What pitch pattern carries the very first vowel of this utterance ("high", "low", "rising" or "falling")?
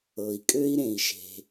low